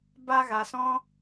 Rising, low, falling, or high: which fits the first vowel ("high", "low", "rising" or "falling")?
high